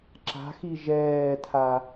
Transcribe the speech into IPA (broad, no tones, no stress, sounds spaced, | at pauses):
ǁ a̤ x i ʒ ɛː tʰ a